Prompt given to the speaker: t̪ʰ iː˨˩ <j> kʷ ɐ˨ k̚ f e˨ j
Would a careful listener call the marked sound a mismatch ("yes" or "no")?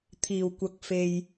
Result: yes